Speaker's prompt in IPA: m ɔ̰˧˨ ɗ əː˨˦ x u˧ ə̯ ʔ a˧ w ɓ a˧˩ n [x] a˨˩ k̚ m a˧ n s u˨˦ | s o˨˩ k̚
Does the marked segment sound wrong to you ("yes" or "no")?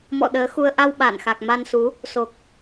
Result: no